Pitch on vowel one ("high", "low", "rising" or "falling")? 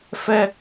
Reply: high